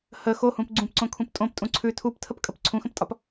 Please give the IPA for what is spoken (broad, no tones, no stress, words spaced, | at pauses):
hə xohũp ɡ͡ǀũpǀõkʰũp tʼõptʼũ ǀʰʉ tʰuptʰəpkʼəp ǀʰũxə̃ptʼɒp